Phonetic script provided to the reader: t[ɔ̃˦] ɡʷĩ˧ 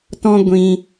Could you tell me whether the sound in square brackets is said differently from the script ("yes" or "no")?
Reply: no